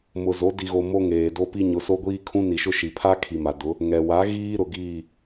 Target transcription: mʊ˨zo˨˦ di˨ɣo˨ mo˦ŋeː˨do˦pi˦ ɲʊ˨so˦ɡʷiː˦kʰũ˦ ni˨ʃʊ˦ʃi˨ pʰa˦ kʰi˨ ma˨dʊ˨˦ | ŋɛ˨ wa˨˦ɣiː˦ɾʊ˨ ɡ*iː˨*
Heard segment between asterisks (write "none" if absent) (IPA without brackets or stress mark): iː˦˨